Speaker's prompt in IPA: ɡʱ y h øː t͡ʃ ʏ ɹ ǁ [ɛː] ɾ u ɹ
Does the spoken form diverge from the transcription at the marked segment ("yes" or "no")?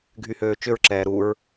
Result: no